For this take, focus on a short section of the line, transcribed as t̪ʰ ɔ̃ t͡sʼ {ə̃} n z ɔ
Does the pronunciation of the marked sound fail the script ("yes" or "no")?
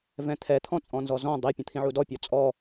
yes